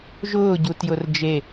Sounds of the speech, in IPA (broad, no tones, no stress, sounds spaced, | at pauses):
ʒ ʊː ɟ u t j ʊ r d͡ʒ e